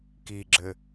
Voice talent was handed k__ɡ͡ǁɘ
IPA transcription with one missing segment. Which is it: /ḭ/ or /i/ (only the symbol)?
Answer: i